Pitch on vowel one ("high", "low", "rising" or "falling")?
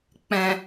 low